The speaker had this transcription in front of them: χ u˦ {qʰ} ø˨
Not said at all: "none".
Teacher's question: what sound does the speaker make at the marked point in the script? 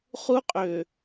qʼ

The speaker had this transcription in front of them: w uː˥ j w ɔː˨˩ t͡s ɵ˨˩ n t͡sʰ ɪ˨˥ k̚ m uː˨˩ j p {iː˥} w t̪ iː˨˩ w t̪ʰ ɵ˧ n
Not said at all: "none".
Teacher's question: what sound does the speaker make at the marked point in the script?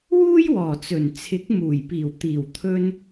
iː˨˩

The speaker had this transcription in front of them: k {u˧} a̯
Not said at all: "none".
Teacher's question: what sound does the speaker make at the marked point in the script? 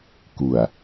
u˨˩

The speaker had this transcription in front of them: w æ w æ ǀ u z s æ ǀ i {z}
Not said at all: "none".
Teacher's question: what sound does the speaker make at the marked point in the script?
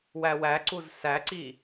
none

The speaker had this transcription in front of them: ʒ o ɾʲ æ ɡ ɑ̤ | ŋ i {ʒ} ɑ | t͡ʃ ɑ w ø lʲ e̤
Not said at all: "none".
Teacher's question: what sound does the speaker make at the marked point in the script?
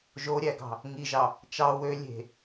ʒ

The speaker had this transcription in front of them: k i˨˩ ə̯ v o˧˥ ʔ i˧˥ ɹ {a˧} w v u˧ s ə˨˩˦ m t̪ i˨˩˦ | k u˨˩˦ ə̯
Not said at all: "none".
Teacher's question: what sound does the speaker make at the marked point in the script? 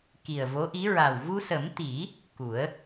a˨˩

